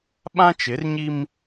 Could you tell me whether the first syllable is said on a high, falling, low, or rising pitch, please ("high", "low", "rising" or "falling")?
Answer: high